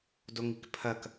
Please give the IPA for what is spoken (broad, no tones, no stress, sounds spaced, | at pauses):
d o ŋ i k pʰ ɐ k